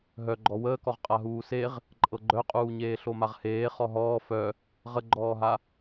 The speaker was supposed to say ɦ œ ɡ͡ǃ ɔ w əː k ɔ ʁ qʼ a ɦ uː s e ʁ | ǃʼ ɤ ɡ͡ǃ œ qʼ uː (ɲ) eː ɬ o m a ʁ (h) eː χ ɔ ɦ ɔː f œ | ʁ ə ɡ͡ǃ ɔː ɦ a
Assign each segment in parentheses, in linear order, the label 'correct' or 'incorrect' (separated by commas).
correct, correct